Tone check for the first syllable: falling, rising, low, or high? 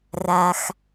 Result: low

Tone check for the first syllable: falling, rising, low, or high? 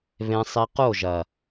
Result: high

